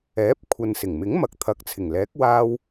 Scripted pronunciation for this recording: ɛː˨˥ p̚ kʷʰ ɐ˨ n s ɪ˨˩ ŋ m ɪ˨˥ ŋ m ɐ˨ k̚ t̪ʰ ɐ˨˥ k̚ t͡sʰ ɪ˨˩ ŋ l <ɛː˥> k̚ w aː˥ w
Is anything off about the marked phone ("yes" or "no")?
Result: yes